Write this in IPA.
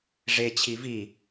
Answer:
ʐe t͡ɕʰivi

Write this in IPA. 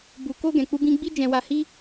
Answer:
bu˧ko˦ ɡɛ̃˧k͡pu˦bĩ˦ ɡ͡bi˦d͡ʒɛ̃˧wa˧hi˦

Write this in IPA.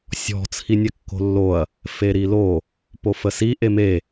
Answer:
sʲɔ̤ t͡sʰinʲɛkːo̤lːoɐ̯ | feɾilo | pofəsi ʔeme

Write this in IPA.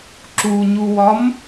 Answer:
ǁuɲuwɒm

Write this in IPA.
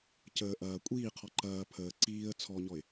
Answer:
cəː ʔɐː kʷʼiːqʰɔ ǃɐː pʰəː ǀiːə̯ t͡sʰɔɲɔɪ̯

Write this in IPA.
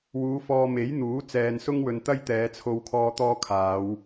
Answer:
wuː˨˧fɔː˧ me˨˥jn̪uː˨˥ t͡sɛː˨nsʊ˥ŋwɵ˨n t̪ɐ˥jt̪ɛː˨˧t͡sʰo˧wkʰɔː˧ t̪ɔː˥kʰaː˨˧w

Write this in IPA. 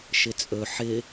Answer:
ʃɪt͡sʼɵ ħɪ

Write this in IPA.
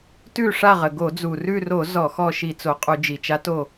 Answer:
tʉ˦˨ʂa˦˨ʁə˩ ɡo˧˩˧d͡zu˩ rʉ˦˨ro˧˩˧ zɔ˧˩˧xɔ˦˨ ʃi˧˩˧t͡so˩qʼu˧˩˧ d͡ʒi˩t͡ʃa˧˥to˦˨

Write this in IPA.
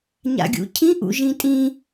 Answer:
ɲa̰ɡʲṵcʰĩ ʔṵʒĩtʼĩ

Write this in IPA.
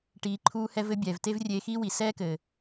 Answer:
ʈiː˨˦ǃʰuː˦hɛ˦v ɘ˦bʲɛː˨v te˦vrʲeː˧xiː˦wi˨ sɛː˦kɘː˨

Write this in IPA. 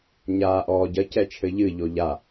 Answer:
ɲaːʔɔːɟɐ cɛt͡ʃʰɘʎɨ ʎoʎa

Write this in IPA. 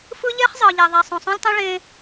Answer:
fɯ˦ʎe˦χzˤɤ˨ ʎɛ˨ðˤɛ˨ sˤõ˨sˤõ˦lʲtˤĩ˦ ɭẽ˦

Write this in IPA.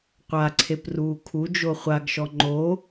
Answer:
qʷaǀʰepruː kʰud͡ʒo χʷaɡʃɔ ŋ͡ǃo

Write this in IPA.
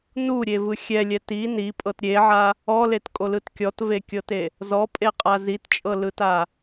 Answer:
nuɾʲevɯ xʲɛlʲɛ ti nipʼɤt ɾʲeʕa | ɔletkʼolɯt kʲɔtvekʲɤte | zɔpʼeqʼa zitt͡ʃʼɤlɯta

